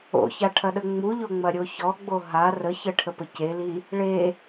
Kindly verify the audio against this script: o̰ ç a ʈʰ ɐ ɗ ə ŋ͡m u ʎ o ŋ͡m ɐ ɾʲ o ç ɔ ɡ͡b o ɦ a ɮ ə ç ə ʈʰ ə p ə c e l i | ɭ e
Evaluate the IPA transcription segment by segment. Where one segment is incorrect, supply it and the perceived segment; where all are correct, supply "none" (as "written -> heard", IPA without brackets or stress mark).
ɮ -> r